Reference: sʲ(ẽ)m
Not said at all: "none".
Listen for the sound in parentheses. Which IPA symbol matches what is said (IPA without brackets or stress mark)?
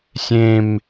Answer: ẽ